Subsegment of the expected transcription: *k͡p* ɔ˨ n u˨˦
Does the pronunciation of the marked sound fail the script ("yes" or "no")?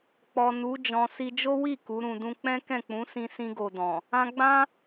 no